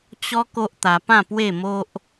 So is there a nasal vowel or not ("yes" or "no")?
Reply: yes